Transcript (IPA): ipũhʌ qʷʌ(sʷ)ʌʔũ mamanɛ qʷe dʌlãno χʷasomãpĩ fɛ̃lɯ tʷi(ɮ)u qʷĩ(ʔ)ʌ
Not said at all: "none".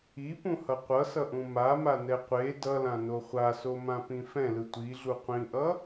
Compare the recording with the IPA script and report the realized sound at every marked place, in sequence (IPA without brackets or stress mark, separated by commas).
s, ɮ, ʔ